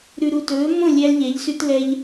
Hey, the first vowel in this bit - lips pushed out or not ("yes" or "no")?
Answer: yes